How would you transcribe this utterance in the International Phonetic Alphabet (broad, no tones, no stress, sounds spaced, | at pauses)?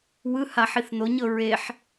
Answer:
w ɯ h a ħ i θ n o ɲ ɤ ɹ e ħ